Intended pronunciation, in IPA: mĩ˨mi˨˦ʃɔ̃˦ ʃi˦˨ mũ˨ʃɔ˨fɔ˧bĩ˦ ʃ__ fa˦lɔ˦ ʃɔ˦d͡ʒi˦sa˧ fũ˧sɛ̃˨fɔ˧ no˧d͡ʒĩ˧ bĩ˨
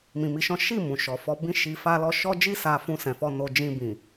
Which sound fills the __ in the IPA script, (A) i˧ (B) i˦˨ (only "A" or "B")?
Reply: A